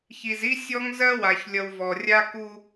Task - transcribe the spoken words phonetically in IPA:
ç i˨ z i˦ sʲ ɔ˦ ŋ z ɜ˦ w a˨ ç lʲ ʌ˨ w v ɔ˨ rʲ a˦ k u˦

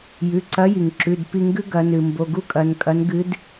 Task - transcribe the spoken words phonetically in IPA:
j ʉ˩˧˩ ǀ ɐ˧˥ j i˩ ŋ ǁ ʉ˩˧˩ d p i˦˨ ŋ ɡ ʉ˥ ɡ ɐ˩˧ n ɨ˩ m b o˩˧˩ ɡ u˥ kʼ ɐ˩˧ n kʼ ɐ˧˥ n ɡ ɨ˧˥ d

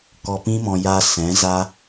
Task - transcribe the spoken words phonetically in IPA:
k ɔ˧ p ĩ˦ m ɔ̃˧ j a˧ s ɛ̃˨˦ z a˦

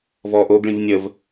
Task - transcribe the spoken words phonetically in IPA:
v ɔ ʔ o ɡ ɭ ĩ v nʲ ə v

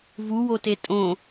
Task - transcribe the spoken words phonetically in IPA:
v u w o t e tʼ õ

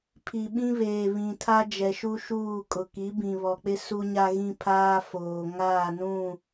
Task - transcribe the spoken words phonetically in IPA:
pʰ i˨ ɓ ĩ˦ β eː˨ β ĩ˨ tʰ a˦ d͡ʒ ɛ˨ ʃ u˦ ʃ uː˦˨ kʼ ʊ˨ k i˨˦ b ĩ˨ β ɔ˨ k͡p ɪ˦ s u˦ ɲ a˦ ɣ ĩ˦ pʰ aː˦ f oː˨ ŋ aː˦˨ n ũ˦˨

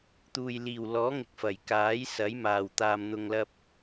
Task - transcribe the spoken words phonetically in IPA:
t̪ uː˨ j l iː˨˩ w l ɔː˨˥ ŋ ɪ˨ k̚ f ɐ˨˩ j k aː˨˥ j s ɐ˨˥ j m aː˨˩ w t̪ aː˨ m n̪ ʊ˨ ŋ l ɐ˧ p̚

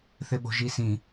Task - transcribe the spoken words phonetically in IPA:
θ ɪ ɓ o̤ ʒ i s ĩ

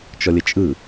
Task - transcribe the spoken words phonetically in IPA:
t͡ʃ ɔ lʲ ə t͡ʃʼ ɯ

